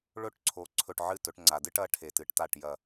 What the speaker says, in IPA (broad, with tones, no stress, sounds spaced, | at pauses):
ɭ ɵ˥˧ ʈ ǀʰ o˩˧ ǀʰ ɵ˧˩ ʈ ʕ ɨ˥˩ t ɵ˩˧ ʈ ŋ͡ǀ a˩ d ɨ˥˧ ʈ ɐ˨˥ ʈʰ e˩ t ɨ˩˧ ʈ t a˥˩ ʈ j ɐ˧˩